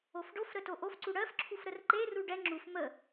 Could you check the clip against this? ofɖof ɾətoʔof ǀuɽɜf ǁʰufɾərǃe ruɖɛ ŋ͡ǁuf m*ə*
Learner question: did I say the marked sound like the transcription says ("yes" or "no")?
yes